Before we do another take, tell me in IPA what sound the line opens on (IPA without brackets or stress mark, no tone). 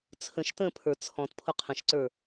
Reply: t͡sʰ